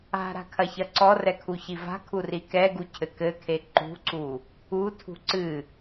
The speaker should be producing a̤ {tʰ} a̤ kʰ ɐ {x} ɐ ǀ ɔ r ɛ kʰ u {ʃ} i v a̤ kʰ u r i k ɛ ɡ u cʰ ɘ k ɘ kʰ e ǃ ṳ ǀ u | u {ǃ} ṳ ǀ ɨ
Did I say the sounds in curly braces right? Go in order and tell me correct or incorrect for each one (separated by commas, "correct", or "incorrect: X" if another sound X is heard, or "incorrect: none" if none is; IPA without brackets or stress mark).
incorrect: ɾ, incorrect: ç, incorrect: ç, incorrect: tʰ